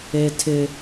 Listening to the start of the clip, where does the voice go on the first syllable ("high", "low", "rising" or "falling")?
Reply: high